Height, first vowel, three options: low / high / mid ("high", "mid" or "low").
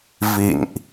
high